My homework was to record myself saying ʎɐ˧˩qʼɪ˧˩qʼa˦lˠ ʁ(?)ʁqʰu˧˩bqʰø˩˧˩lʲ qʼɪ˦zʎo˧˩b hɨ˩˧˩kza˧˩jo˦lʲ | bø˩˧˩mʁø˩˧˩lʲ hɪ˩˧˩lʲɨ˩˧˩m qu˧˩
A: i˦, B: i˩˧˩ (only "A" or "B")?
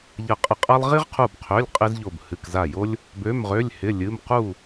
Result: A